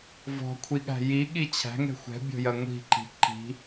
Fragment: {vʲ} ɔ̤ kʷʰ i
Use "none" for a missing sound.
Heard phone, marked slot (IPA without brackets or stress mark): v